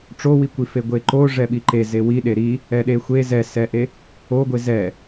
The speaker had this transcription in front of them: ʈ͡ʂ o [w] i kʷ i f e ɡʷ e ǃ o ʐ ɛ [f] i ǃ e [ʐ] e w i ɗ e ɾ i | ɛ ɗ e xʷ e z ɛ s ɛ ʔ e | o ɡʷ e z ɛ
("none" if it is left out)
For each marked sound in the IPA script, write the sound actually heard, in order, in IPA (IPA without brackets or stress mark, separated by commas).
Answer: w, ɓ, z